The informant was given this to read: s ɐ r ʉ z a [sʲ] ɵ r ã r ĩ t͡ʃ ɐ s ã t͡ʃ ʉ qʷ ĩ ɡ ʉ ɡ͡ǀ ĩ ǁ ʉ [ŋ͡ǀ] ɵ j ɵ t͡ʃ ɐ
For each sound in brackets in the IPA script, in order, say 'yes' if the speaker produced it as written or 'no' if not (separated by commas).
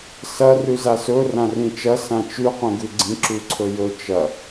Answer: no, no